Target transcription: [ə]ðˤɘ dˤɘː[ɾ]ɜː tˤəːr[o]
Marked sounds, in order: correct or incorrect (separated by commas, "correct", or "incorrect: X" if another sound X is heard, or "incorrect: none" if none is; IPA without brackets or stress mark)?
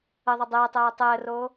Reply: correct, incorrect: tˤ, incorrect: oː